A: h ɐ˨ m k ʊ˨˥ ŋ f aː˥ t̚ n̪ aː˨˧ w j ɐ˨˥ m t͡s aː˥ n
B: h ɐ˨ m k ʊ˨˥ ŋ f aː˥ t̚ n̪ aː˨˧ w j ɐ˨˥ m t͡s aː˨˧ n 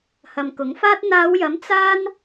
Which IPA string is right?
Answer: A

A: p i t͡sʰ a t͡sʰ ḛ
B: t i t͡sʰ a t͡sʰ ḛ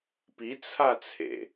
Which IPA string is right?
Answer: A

